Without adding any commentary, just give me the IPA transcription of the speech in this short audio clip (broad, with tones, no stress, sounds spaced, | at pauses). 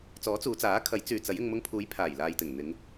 t͡s ɔː˨˥ t͡s uː˨˧ t͡s aː˨˥ kʰ ɐ˨˥ j t͡s yː˨ t͡s ɐ˨˥ j ɪ˧ ŋ m ʊ˧ ŋ pʰ uː˨˥ j pʰ aː˨˩ j l aː˨ j t̪ ɪ˨˩ ŋ n̪ ɪ˨˧ ŋ